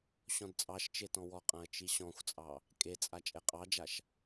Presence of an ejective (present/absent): present